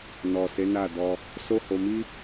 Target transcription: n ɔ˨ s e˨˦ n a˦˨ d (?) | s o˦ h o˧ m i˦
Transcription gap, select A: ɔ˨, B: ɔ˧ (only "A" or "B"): B